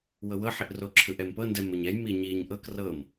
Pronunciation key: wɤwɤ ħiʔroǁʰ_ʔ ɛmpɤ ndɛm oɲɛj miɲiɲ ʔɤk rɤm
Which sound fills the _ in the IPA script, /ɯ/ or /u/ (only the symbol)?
ɯ